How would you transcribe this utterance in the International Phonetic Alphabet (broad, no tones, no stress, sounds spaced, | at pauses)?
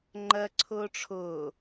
ŋ͡ǃ ɜ ǀʰ ʊː ʈ͡ʂʰ ʊː